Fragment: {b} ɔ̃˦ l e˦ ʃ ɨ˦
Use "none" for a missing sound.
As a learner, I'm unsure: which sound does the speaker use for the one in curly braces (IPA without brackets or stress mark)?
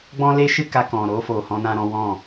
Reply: ɡ͡b